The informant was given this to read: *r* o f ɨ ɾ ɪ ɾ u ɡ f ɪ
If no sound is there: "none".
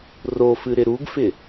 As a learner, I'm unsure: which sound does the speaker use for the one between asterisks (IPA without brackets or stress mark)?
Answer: r